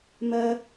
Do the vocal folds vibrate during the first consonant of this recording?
yes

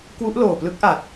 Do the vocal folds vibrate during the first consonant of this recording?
no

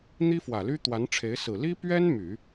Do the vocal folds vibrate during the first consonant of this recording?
yes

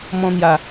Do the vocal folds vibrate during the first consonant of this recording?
yes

